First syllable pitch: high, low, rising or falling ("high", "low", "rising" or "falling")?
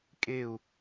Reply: falling